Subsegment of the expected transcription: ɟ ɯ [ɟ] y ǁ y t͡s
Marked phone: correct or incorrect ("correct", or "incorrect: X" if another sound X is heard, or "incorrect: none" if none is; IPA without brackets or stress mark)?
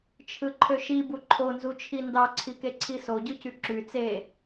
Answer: incorrect: c